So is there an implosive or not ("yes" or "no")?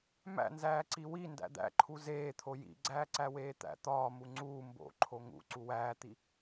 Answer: no